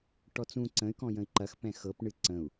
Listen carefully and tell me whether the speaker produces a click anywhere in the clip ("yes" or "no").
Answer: yes